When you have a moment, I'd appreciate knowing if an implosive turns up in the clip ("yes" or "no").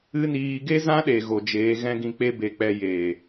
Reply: yes